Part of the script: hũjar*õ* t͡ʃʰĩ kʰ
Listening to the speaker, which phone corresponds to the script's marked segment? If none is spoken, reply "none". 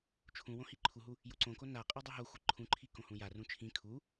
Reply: ũ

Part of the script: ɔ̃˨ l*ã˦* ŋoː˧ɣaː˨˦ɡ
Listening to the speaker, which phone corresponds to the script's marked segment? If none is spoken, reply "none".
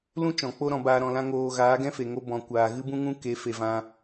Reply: ã˦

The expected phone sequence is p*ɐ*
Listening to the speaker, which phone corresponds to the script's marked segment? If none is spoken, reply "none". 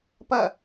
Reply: ɐ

